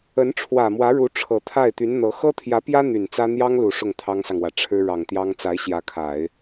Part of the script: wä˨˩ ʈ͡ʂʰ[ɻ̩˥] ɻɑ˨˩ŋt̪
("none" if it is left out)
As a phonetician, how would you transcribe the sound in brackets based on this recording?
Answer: ɻ̩˥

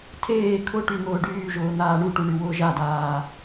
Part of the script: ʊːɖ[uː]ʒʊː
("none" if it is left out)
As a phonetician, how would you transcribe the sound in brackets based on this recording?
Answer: yː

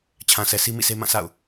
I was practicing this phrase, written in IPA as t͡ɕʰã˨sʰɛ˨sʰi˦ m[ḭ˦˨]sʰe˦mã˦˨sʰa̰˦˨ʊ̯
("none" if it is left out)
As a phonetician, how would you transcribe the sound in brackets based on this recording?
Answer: ḭ˦˨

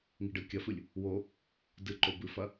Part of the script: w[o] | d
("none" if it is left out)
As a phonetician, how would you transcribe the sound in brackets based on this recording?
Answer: o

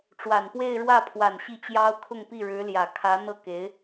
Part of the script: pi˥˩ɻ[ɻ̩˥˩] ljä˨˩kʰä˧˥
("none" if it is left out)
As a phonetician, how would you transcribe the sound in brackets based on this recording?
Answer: ɻ̩˧˥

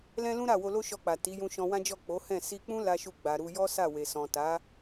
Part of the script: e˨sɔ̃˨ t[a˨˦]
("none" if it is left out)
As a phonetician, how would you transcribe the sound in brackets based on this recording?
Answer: a˨˦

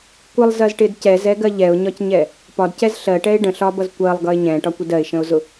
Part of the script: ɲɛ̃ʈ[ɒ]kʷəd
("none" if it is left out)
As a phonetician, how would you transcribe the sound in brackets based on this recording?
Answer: ɒ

